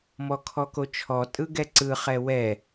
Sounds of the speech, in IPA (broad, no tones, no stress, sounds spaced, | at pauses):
m ɔ kʰ ɔ k o t͡ʃʰ ɔ tʼ ɯ ɡ ɛ ǀ ɯ χ ɛ w ɛ